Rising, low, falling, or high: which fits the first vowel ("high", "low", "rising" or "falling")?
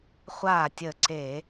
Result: falling